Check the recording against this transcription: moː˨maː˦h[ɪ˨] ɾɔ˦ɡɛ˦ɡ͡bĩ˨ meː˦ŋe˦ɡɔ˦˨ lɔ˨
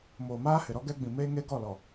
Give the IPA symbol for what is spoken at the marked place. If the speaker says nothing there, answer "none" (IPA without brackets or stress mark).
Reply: ɪ˨